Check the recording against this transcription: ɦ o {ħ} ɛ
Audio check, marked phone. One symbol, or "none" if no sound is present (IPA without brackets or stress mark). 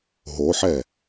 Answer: ħ